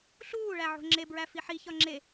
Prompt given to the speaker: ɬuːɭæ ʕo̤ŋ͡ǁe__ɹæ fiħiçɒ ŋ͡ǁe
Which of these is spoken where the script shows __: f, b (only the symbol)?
b